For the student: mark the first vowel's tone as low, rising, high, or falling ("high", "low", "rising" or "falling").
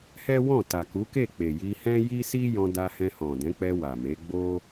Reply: high